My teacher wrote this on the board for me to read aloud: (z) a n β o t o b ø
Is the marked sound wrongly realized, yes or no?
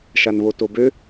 yes